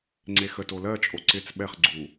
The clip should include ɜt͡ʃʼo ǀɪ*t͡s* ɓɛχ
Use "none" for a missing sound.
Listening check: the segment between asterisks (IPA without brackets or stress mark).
t͡s